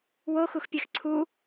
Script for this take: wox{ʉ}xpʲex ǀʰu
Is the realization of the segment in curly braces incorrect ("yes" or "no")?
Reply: yes